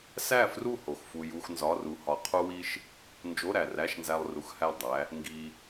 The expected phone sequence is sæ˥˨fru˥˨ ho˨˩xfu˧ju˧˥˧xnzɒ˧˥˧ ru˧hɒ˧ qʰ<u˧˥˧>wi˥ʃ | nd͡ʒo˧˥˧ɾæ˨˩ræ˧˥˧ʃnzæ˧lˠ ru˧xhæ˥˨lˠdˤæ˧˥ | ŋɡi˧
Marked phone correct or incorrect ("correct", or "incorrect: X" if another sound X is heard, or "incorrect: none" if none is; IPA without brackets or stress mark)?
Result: incorrect: u˥